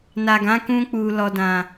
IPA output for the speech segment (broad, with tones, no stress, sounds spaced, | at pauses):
n a˨ ɡ ã˨˦ k ũ˧ k͡p u˨ l ɔ˨ d ã˨